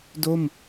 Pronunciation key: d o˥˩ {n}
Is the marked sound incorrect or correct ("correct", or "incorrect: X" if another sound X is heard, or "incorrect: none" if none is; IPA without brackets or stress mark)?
incorrect: m